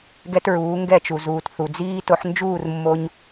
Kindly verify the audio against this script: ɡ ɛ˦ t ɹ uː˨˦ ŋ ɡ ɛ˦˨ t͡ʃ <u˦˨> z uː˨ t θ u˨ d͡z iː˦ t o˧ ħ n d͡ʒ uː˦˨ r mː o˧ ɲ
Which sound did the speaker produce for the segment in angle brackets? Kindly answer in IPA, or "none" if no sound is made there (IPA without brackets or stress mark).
u˨